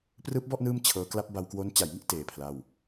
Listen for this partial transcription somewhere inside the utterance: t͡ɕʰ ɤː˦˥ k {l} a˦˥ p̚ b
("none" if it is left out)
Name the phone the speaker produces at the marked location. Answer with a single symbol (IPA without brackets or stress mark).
l